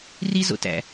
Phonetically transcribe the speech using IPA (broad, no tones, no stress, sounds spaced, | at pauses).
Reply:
r i z o̰ t æ̰